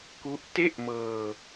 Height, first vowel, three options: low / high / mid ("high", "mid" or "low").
high